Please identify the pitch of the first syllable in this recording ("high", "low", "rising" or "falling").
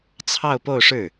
falling